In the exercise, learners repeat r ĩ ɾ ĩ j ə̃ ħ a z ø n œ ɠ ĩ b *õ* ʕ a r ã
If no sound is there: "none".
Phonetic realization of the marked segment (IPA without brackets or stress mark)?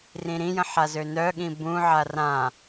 ũ